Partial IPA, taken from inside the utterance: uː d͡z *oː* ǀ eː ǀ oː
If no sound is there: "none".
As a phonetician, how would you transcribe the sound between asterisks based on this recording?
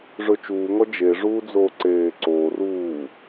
oː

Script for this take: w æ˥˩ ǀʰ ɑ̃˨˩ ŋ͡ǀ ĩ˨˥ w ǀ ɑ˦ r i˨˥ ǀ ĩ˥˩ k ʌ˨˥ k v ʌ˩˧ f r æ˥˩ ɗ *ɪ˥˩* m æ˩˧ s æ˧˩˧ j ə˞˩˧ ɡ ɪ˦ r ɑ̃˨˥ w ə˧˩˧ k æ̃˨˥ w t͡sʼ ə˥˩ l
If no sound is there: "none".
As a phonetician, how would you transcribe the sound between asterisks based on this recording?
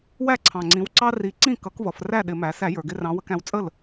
ɪ˧˩˧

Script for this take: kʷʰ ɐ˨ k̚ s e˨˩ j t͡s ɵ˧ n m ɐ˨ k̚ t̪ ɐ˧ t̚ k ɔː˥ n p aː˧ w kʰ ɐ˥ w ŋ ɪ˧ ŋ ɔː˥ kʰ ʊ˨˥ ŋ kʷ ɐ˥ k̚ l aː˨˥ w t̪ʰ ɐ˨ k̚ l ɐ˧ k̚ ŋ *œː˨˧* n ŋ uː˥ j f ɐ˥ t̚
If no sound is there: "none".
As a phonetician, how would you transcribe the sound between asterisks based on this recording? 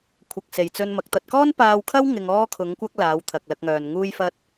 œː˨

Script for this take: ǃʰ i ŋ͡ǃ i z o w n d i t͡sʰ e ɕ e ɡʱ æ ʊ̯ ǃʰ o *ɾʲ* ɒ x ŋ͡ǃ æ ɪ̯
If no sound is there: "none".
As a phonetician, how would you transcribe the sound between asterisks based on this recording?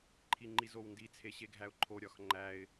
ɾʲ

